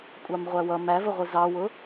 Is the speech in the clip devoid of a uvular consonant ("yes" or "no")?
no